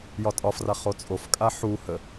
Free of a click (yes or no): yes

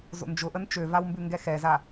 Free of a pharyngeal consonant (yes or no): yes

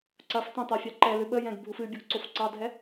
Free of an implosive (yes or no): no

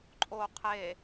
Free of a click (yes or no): no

